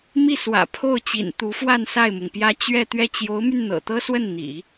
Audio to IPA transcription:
m i˥˩ s w ä̰˨˩ pʰ o˥˩ ʊ̯ t͡ɕ ḭ˨˩ n t̪ u˧˥ f w a˥˧ n s a˥˩ ɪ̯ m ʊ˩ ŋ p j ä˥ t͡ɕ ɥ ɛ˥˧ t̪ ɥ ɛ˥˩ t͡ɕ j o˧˥ ʊ̯ m y˧ n n̪ ɤ̰˨˩ t̪ ɤ˥ s w ə˥˩ n n̪ ḭ˨˩˦

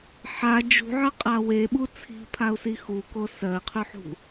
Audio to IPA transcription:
ħ a d͡ʒ ṳ ʕ ɜ qʼ a w e ɓ u t͡sʰ i̤ pʰ a u̯ s i x u k o s ɜ qʰ ʉ ħ ṳ

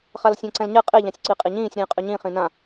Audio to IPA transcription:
χ a l sʲ ã ǀ ɛ̃ l ɲ ɛ qʼ e ʎ ã sʲ ǀ i qʼ i ɲ ĩː sʲ ɾ ĩː qʼ y ɲ ĩ χ ĩ n ã

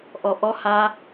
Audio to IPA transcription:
ʔ ɔ ʔ ɔ h a

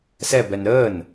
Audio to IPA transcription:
s ɛ b ɛ n ɾ əː n

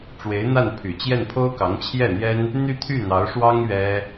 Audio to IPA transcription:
ʈ͡ʂ w e˧˥ ɪ̯ n̪ a˥˩ n pʰ y˨˩ t͡ɕ j ɛ˥˩ n pʰ o˥ ʊ̯ k ɑ˧˥ ŋ t͡ɕʰ j ɛ˥˩ n̪ j ɛ˥ n | n̪ y˥˧ t̪ʰ y˥˩ n̪ ɑ˧˥ ʊ̯ ʂ w ɑ˥ ŋ ɥ ɛ˥

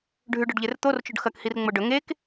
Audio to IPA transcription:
ɖʱ ʉ ɖ ɵ ɖ ʎ e r t̪ o r t͡ʃ o ɖ x ɐ k h i r ŋ͡m o ɖ ɵ ŋ e k

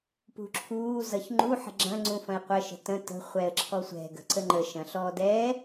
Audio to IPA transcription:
p ṳ ǁʰ uː z ʌ ç ŋ͡ǃ u ħ ə̤ ɡ͡ǁ ɐ̃ ŋ͡ǀ ũ f ɐ̃ ɪ̯ qʷ ə ʃ ə̤ t ə̃ t ə̤ χʷ ɛ ə̯ ǁʰ ɔ sʷ ɛ̤ ɡ ə̤ ǀ ə ŋ͡ǃ ə ʃ ɐ̃ ɬ ɔː d ɛː

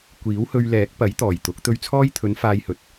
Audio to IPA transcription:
kʷ iː˨˥ w h ɵ˧ ɥ l ɛː˨˥ k̚ p ɐ˨˥ j t̪ ɔː˨˩ j t̪ ʊ˨˥ k̚ t̪ ɵ˧ ɥ t͡sʰ ɔː˥ j t̪ʰ ɵ˨˥ n f aː˧ j h ɵ˨˥ t̚

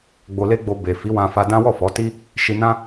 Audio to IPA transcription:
ɡ͡b o˧ l e˦ ɡ͡b o˧ b e˨ f i˨˦ w ã˧ f a˧ d ã˦ w ɔ˦˨ f ɔ˨˦ t i˦ | ʃ i˧ n ã˦

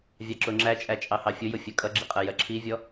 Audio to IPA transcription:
vʲ ɑ ǁ ʊ ŋ͡ǁ æ t͡ʃʼ æ t͡ʃʼ ɑ h ɑ fʲ ʊ j ʊ fʲ ɜ kʼ ʌ ɡ͡ǁ i qʼ ɜ j ɜ ǁʰ i vʲ ɔ

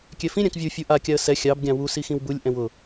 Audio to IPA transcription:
kʲ ɛ f ĩ ɾʲ ã k vʲ u fʲ u ʔ a kʲ a ə̯ s ɛ xʲ ɑ b ɡʲ ɑ̃ w u s i x ĩ w b u lʲ ʔ ɛ̃ w ʊ

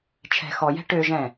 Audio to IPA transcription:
t͡ʃʰ ɛ̤ x ɔ j ɛ̤ ʈ ø ʒ ɛ̃

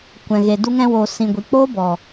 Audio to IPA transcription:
kʷ ɛ̃˨ ɣ e˨ d u˧ ŋ ɛ̃˧ w oː˨ s ĩ˨ ɡʷ i˨ k͡p oː˦ b ɔ˨

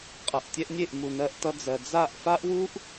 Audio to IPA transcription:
qʼ ʌ˨ ʔ tʲ ɛ˧ ʔ nʲ e˦˨ ʔ m u˨ n ɜ˧ ʔ t ʌ˧ d͡z ɜ˨ d͡z a˦˨ ʔ f a˦ ʔ w u˦ ʔ

